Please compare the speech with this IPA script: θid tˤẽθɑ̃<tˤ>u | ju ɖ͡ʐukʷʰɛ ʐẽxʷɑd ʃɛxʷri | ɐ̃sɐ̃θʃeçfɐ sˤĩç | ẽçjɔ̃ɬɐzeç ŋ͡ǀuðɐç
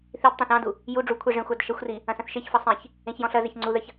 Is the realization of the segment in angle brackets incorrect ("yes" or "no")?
yes